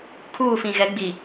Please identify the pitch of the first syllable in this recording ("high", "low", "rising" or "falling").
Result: falling